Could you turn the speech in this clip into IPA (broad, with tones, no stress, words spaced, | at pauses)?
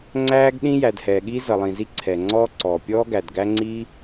ŋ͡ǀæː˦ɡɗĩ˦ jæ˩dhɛː˩ɠiː˦ zʌ˩lˠĩ˩zi˦ ǀʰɛ˩ŋ͡ǀɔː˦ǀɔː˩ pʲɔː˦ɡæ˩dɡæ˦ŋ͡ǀi˦